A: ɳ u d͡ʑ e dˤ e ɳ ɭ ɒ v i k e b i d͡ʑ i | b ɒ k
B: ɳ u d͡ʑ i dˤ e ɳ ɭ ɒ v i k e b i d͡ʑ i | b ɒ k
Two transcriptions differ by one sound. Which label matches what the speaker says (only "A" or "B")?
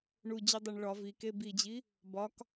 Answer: B